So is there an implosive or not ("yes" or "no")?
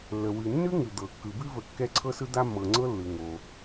no